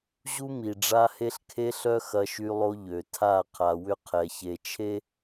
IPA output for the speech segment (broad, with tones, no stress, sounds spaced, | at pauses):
ʑ u˦ m i˨ ɖ͡ʐ a˦ h e˦ ɬ kʰ e˦ ɬ œ˦ x ɐ˦ ʃ y˦ lˠ o˦ ʎ ø˨ tʰ a˦˨ qʰ a˨ w ʏ˦ qʰ ɛ˨ ç e˨ t͡ʃʰ e˦